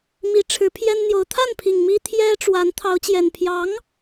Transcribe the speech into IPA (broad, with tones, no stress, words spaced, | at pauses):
mi˧˥ʈ͡ʂʰɻ̩˧˥pʰjɛ˥nn̪jo˧˥ʊ̯ t̪ʰa˥˩npʰi˨˩ŋ mi˥t̪ʰjɛ˥ ʈ͡ʂwa˧˥n t̪ʰɑ˧˥ʊ̯t͡ɕjɛ˨˩n pʰjɑ˧˥ŋ